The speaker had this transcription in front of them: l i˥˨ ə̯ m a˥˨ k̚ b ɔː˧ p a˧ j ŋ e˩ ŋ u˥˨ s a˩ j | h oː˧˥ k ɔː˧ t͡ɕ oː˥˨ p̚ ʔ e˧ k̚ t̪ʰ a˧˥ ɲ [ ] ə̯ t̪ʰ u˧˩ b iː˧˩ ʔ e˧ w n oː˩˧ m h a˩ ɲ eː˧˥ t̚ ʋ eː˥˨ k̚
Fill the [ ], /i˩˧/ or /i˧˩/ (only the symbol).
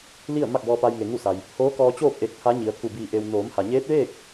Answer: i˩˧